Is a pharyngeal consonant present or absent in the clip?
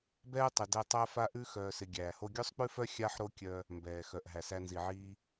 present